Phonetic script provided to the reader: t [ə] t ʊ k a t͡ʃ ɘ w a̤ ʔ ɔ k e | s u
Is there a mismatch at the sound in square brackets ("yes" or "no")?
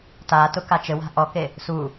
yes